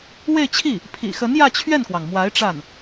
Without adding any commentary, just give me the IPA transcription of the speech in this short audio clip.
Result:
w e˥˧ ɪ̯ t͡ɕʰ i˥˩ | pʰ ḭ˨˩ x ə˧˥ n j ä˥˧ t͡ɕʰ ɥ ɛ˥˩ n k w ɑ˩ ŋ m w a˧˥ ɪ̯ ʈ͡ʂ a˥˩ n

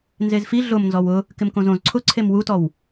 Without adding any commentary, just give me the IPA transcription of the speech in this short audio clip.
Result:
n z e z f i ɮ ʊ m n z ɔ w ʊ | k ɪ m k õ z õ z ǀʰ ʊ ǀʰ e m w u t ɔ w

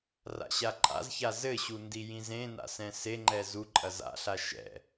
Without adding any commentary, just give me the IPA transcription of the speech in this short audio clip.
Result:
r a̰ ɕ a ǃʼ a̰ z ç a z ɘ ɕ u n d i j ĩ z ẽ n a̰ s ɛ̃ s e ŋ͡ǃ ɛ z u ǃʼ ɐ z a̰ ɬ a ʃ ɛ̰

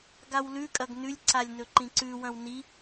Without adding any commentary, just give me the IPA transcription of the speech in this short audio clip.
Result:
ɡ a w l ʉ kʼ ɐ ɡ n ʉ lʲ ǀ a lʲ n ɵ ǃ ĩ ǀ ʉ w ɐ̃ w n i

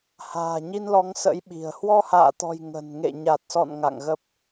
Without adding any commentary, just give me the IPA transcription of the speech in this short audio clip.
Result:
h a̤ː˨˩ ɲ i˧ n l ɔ˨˦ ŋ s ə̰˧˥ j ɓ i̤˨˩ ə̯ h w ɔ˧ h a̰ː˧˨ t̪ ɔ̤˨˩ j ŋ ə̤˨˩ n ŋ ḛ˧˨ ɲ a˨˩ t̚ s ɔ̰˧˨ n ŋ a̰˧˨ ŋ ɣ ə˦˥ p̚

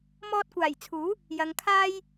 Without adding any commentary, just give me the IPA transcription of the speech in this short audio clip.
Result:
m ɔː˧ t̚ kʷ aː˨˩ j t͡sʰ uː˨˥ | j ɐ˨˧ ŋ kʰ aː˥ j

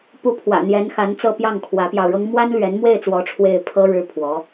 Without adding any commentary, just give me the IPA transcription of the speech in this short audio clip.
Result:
p u˧˥ pʰ w ä̰˨˩ n̪ j ɛ˧˥ n x a˧˥ n t͡s ɤ˥˧ p j ɑ˥˩ ŋ kʰ w ä˧˥ p j ɑ˧ ʊ̯ ɻ ɤ˥ ŋ m w a˥ n l ɥ ɛ˧˥ n m w e˥˩ ɪ̯ t͡s w ɔ˧˥ ʈ͡ʂʰ w e˥˩ ɪ̯ pʰ ɤ˥ ɻ ɻ̩˥ pʰ w ɔ˧˥

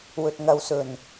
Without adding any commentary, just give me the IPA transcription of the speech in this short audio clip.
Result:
w ɵ˨ t̚ ŋ ɐ˨˧ w s ɵ˨˩ n

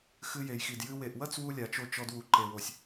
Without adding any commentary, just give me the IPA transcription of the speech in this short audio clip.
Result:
x ɨ˧ j e˨ j x i˨ d j ɨ˧ w e˨ ʔ w ɐ˦ t͡s w u˧ lʲ a˨ t͡ʃ o˧ t͡ʃ ɔ˧ d w u˨ ǃ e˨ w o˨ sʲ

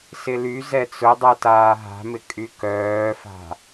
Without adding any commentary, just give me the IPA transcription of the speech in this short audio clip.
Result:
s ɪ l y z ɛ t͡s ʊ dˤ ɛ t aː ɦ a̤ m ɪ kʼ y k œː f a̤

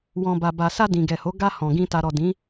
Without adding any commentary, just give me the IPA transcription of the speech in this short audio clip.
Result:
w ɔ̃˨ b a˨ b a˨ s a˧ d ĩ˨ ɡ ɛ˨ h o˨˦ ɡ a˧ h ɔ̃˨ ɡ ĩ˧ t a˨ ɾ ɔ˨ d ĩ˨˦

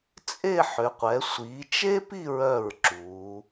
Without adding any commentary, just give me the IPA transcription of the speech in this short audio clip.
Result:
t͡sʼ e˥˧ ħ ʏ˩˧ qʷ ɛ˩˧ sʷ i˩˧ t͡ʃ e˥ p i˥˧ ɹ œ˧˩ ɹ ǁ u˩˧

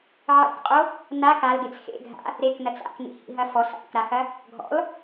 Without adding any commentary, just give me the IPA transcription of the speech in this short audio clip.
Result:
ʕ ḛ k qʼ o | n a k a l ɡ e t͡s x ḛ ɡʱ a̰ | ɾ e k n ɐ t͡s a̰ k n ḭ h ḭ ɦ ɐ f ɔ s a̰ k ɾ a x ɐ | ɡʱ ɔ̰ l

